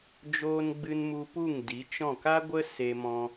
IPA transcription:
d͡ʒ oː˧ n ɡ͡b ɨ˧ n m u˧ p u˦˨ ŋ d i˨˦ t͡ʃ ɔ̃˦˨ k a˦ ɡʷ ə˦ s e˦ m ɔ̃˦

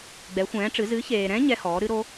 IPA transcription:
ɡ͡b ɛ˨˥ xʷ ɛ̃ː˨˥ ʈ͡ʂ ɨ˨˥ z ɨ˨˥ ç eː˨ ɾ ɛ̃˦˥ ɲ ɛ˦˥ h ɔː˨˥ ɾ ɨ˦˥ ɾ o˦˥

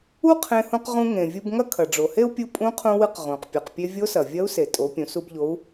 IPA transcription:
u˥ qʰ ẽ˧ h ũ˧ q ʁ ũ˧ ŋ ẽ˩ vʲ u˧ b ŋ ɐ˥ kʰ ɐ˩ ɖ͡ʐ o˩ h e˥ u̯ pʲ u˧ pʼ ũ˧˥ qʰ ũ˧ w ɨ˧ q ʁ ũ˩ q pʲ u˩ q pʲ e˧ vʲ o˧˥ s ɐ˩ vʲ ɐ˧˥ u̯ s e˩ tʼ o˩˧ pʲ ũ˩˧ s u˧ b ʎ o˧˥ u̯

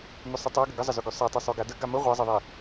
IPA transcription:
m ø sˤ i tˤ a ɡ ə ɡ ə zˤ ə z ø ɡ ø sˤ a tˤ ə sˤ ø ɡ a d ə ɡ a m ə ʁʷ a zˤ ə ðˤ i

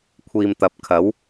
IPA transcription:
kʷʰ iː˨ m t̪ ɐ˨˥ p̚ kʰ ɐ˨˥ w

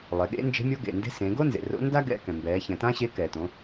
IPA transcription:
lˠ e˩˧ ɠ ḛ˧˥ n d͡ʒ e̤˧˥ mʲ o˧˥ ɡ ḛ˩ n d e̤˧˥ s ẽ˩˧ ɡ o˥ n z ḛ˩ r o̰˧˥ n d a˥ ɡ ɛ̰˧ k ɛ̃˩ m b ɛː˩˧ ç ɛ̃˩ t ã˥ ɕ e˧˥ k ɛ˩ t õ˩˧

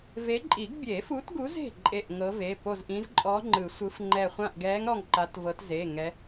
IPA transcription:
v e˨˦ ǃʼ i˨˩˦ ɡ bʲ e˨˩˦ f u˨˦ t ɡ u˨˦ z e̤˧˩ ǃʼ e˧˩ ʔ ŋ ɤ˨˦ v e˩˧˩ p o˧˩ z ʔ ĩ˨˦ z ǃʼ ɔ˨˦ ŋ͡ǃ ɯ˨˩˦ sʷ ɯ˨˦ f ŋ͡ǃ ɛ˧˩ χʷ ã˧˩ ʔ ɡ ɛː˨˦ ŋ ɾ ɔ˧˩ ŋ ǃ a˨˦ t v ɤ˨˦ t z e˩˧˩ ŋ ɛ˨˦

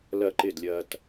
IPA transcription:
l ɐ˦˨ ǃ ɪ˦˨ d lʲ ɐ˧ t

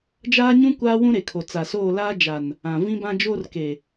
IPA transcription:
d͡ʒ aː˦ ɲ ũ˦ kʷ aː˦ w ũ˦ ɾ e˨ kʰ o˨ t͡s a˨ s oː˦˨ l aː˦ d͡ʒ a˨ n | ã˨ v ĩ˦ b ã˦ d͡ʒ oː˦ r k e˨

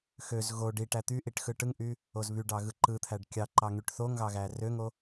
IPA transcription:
x ø z ɣ o ɖ i ʈ æ t̪ y ʔ i ʈ x ɯ ʈ ɯ ŋ ʔ y | o z β y ɖ ɑ ɣ ɯ ǃ ɯ t̪ʰ æ ɖ kʲ ɑ ǃ ɑ ŋ y ʈ θ o ŋ ɣ ɑ ɣ æ r ø ŋ o

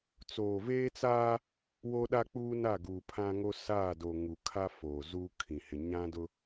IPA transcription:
t͡s oː˨ v eː˦ t͡s aː˦ | w o˦ ɗ a˦ k͡p uː˦ n a˦˨ ɡ uː˨ pʰ ã˦ ŋ o˦ s aː˦˨ d o˨ ŋ u˨ kʰ a˦ f oː˨ z uː˦ kʰ ĩ˨ h ɪ˨ ɲ ã˦ d ʊ˦

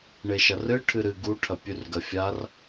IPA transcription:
ɳ e ʃ ɐ r ɨ ʈʰ ɨ ɾ ɨ ɡ u ʈʰ ɐ pʲ ʉ r ɡ ɐ fʲ a r

